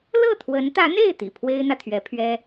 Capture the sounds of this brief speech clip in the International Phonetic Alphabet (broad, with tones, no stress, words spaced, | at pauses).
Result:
lɤ˥˩t̪ʰwə˧˥nt̪ä˧˥n̪e˥˩ɪ̯ t̪ḭ˨˩pʰwe˥ɪ̯n̪ä˨ t̪ʰɥɛ˧˥pʰɥɛ˥